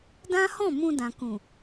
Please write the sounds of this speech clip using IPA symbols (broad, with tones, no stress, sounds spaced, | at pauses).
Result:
d ã˦ h ɔ̃˦˨ m ũ˧ d ã˨ k ũ˨